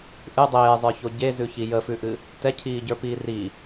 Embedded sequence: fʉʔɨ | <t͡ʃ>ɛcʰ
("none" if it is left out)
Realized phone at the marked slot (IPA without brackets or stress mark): t